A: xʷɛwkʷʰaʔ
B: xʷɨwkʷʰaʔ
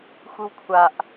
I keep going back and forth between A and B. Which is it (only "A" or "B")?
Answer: B